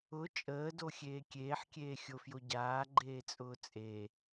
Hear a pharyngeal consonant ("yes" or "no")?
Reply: yes